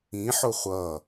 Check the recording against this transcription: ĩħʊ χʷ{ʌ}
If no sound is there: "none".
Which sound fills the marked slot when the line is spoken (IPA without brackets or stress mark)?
ʌ